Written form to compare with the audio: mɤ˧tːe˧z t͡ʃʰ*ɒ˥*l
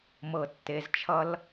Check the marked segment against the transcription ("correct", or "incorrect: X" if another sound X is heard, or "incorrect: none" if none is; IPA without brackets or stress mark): incorrect: ʌ˥